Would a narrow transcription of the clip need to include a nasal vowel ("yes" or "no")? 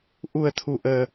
no